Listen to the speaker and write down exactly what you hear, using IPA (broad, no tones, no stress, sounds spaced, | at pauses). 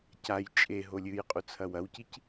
c a j t͡ʃʼ e ɦ o lʲ ɨ j qʼ u t͡sʰ ɐ w ɐ w c i c